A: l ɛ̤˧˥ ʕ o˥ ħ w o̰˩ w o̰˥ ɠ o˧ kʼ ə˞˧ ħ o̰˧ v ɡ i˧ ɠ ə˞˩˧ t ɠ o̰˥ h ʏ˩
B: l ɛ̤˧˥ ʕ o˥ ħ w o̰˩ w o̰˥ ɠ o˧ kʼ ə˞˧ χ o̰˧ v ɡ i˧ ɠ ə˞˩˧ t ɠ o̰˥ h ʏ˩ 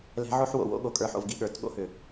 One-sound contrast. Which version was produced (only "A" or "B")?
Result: A